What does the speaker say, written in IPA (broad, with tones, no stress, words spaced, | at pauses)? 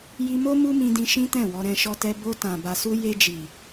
ji˧mo˦ mu˦mĩ˧dĩ˧ ʃĩ˦tɛ̃˦˨wɔ˧ɾɛ̃˧ ʃɔ˧tɛ˧ bo˧tã˨ ba˨su˧ je˧d͡ʒi˨